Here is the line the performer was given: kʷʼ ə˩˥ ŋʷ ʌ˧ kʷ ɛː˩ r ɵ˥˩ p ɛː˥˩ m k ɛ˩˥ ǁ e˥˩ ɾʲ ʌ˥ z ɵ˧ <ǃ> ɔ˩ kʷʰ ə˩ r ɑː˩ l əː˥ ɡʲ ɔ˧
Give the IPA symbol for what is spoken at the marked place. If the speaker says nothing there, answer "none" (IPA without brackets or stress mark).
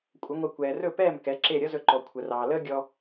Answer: ǃ